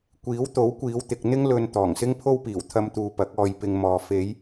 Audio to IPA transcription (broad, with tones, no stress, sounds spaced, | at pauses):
kʷ iː˨˥ w t̪ o˨˥ w kʷ iː˨˧ w t̪ ɪ˨ k̚ n̪ ɪ˥ ŋ l ɵ˧ n t̪ ɔː˨˩ ŋ s ɪ˥ ŋ pʰ o˥ w p iː˨˩ w t̪ʰ ɐ˧ m t̪ uː˨ p ɐ˨˥ k̚ ɔː˧ j p ɪ˧ ŋ m ɔː˨ f e˨˧ j